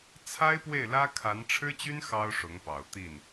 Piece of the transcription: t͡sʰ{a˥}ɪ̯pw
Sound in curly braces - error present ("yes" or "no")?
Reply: no